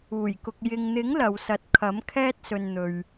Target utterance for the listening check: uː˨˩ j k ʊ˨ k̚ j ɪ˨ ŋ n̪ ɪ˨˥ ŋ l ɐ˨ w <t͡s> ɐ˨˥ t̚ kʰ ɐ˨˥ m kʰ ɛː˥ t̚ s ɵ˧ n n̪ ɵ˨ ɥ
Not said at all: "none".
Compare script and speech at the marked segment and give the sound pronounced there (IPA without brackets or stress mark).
s